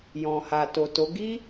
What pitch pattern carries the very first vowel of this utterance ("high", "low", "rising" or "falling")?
low